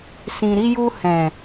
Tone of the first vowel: low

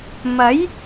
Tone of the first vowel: rising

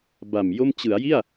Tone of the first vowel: low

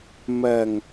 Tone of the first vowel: low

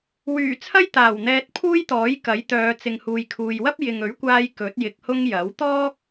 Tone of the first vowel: low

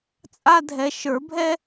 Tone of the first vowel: high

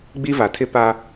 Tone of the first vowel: high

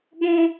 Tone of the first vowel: high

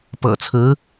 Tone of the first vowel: low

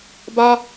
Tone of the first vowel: high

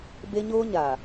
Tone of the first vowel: high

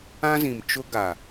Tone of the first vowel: high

